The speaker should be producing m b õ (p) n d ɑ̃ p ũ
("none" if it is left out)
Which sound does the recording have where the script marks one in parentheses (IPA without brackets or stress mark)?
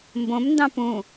m